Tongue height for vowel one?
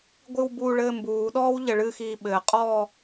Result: high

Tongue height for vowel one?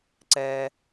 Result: mid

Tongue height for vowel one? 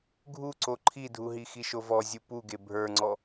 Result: high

